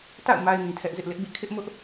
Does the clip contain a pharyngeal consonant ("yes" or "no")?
no